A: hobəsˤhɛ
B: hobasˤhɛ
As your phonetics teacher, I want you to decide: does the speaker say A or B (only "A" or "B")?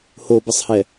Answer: A